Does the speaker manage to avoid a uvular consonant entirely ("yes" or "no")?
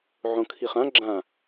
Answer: no